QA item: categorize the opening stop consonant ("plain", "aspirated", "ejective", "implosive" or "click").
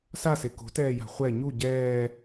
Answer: plain